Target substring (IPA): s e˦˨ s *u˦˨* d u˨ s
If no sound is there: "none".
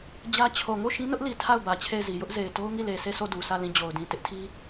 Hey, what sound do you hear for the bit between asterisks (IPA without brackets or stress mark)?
o˦˨